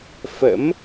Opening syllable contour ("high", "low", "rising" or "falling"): rising